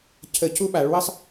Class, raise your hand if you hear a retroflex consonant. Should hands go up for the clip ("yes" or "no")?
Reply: yes